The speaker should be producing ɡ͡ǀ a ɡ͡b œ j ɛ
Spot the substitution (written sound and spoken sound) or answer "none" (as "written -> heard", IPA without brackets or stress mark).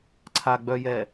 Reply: ɡ͡ǀ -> ǀʰ